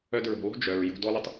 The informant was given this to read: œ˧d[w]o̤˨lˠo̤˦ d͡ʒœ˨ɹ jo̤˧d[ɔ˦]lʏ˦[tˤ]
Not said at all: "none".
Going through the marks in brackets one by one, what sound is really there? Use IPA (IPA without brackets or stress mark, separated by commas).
ɹ, ɔ˦, tˤ